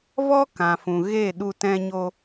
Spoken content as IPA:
v ɔ˦ k ã˨ f ũ˨ ɣ eː˦˨ ɗ u˧ t ɛ̃˧ ɲ o˧

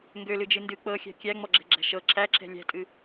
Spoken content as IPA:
ŋ ɡ ø l ɨ d͡ʒ ɨ n d ɨ k͡p ɤ xʲ æ̤ kʲ æ ŋ͡m ɔ ɡ͡ǁ ɛ̤ ɡ͡ǁ æ̤ ʃ ɤ ǁʰ æ ǁ ɛ̤ lʲ æ̤ tʼ ɨ

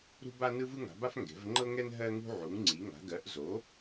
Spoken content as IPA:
ɾ ṳ˥ b a˥ n ɯ˥ v ɯ˥ ŋ a̤˩˥ b a˥ f ŋ ɡ ɛ̤˩˥ v ŋ͡ǃ ɤ˥ ŋ ɛ˥ n ɦ ɜ˥ ŋ ṳ˥ ʕ u˩˥ ŋ ŋ͡ǀ i˩˥ ŋ a̤˩˥ ɡ ɜ˩˥ ʔ z o˩˥

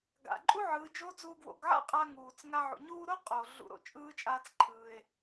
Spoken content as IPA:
ɡ a̰˩ ǃʼ u˥ ʕ ɯː˩˧ d͡ʒ o˧˥ d͡z uː˧ ɡ w o̰˩˧ ɡ ʕ a̰˥ qʼ a˧ ŋ uː˩ t͡s ŋ a˧ ʕ ṵ˩ ɲ uː˥ ɾ o˥ qʼ oː˩ ɮ ṵ˩˧ ɾ o̰˧ t͡ʃʼ ɯː˧˥ t͡ʃʼ aː˧ t͡s ǃʰ ɯː˩ e̯

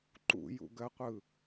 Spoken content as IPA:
ǃ ṵ j ṵ ɡ ɜ qʷ ɯ

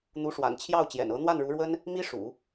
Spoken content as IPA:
n̪ u˧˥ ʂ w a̰˨˩ n t͡ɕʰ j ɑ˥˩ ʊ̯ t͡ɕ j ɛ̰˨˩ n ɤ˧˥ n̪ w a˥˩ n ɻ u˧˥ ɻ w ə˥ n | m i˥ ʂ ṵ˨˩˦

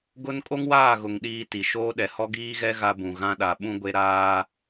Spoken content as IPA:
ɡ ʊ˦ n kʼ o˦ ŋ w aː˦˨ ɣ ʊ˨ ŋ ɗ iː˦ t i˨ ʃ oː˦ ɗ ɛ˨ h ɔ˦ ɡ iː˦ ɣ ɛ˦ ɣ a˦ b ũ˨ ɣ ã˦ ɗ a˨ ɓ ũ˦ ɡʷ e˦ ɾ aː˦

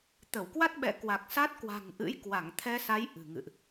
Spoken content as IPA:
t̪ ə˧˩ w k w a˦˥ t̚ ɓ ɛ̰˧˨ k w a˨˩ k̚ s a˦˥ t̚ k w a̤˨˩ ŋ ʔ ɨ̰˧˥ j k w a˧˩ ŋ t̪ʰ ɛ˧ s a˨˦ j ʔ ɨ̤˨˩ ŋ ɨ̰˧˨ ʔ

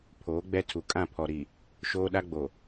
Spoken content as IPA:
pʰ oː˨˦ ɡ͡b ɛ˦ tʰ u˨ kʼ ã˦˨ pʰ ɔ˨ ɾ i˨ | ʃ oː˦ ɗ a˦ ɡ͡b o˨

